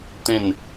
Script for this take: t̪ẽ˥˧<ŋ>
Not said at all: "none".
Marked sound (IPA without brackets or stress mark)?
n